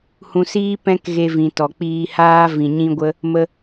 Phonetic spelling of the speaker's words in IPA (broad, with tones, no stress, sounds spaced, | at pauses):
h ũ˧ s iː˦ p ɛ̃˦ k ɣ e˧ v ĩ˨ t ɔ˨ k͡p iː˧ h aː˦ v ĩ˧ ɲ ĩ˦ ɡʷ ə˦ | m ə˧